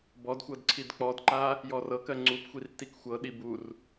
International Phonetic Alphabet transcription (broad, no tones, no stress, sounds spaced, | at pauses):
b ɔ d xʷ ɤ d ǀʰ i d k͡p ɔ d ǃ a | j ɔ r ɤ k ɜ ŋ͡ǀ u p xʷ i r t i k xʷ ɤ ɗ i b u r